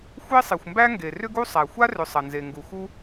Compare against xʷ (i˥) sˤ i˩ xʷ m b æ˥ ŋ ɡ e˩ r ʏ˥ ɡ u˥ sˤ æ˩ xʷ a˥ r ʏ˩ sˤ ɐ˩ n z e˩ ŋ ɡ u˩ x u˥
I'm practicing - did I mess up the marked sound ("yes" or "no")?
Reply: yes